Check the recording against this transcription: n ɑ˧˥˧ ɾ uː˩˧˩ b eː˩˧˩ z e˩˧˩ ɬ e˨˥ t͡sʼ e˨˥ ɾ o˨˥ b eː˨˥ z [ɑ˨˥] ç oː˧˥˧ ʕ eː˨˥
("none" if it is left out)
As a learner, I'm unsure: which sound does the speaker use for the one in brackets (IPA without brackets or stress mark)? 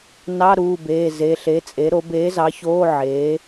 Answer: ɑ˨˥